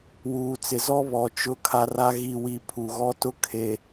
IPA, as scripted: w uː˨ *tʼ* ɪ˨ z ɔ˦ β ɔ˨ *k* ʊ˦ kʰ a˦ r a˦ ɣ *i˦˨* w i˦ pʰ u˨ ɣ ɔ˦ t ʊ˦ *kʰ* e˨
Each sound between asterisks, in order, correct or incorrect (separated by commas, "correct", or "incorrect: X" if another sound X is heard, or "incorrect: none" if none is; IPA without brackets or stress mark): incorrect: t͡s, incorrect: t͡ʃ, correct, correct